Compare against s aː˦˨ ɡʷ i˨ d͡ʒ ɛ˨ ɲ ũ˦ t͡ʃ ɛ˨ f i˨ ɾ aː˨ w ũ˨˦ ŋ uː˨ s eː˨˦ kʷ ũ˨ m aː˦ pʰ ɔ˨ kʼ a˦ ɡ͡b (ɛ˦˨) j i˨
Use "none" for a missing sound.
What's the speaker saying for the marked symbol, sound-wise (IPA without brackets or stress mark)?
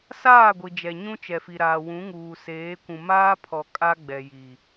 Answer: ɛ˨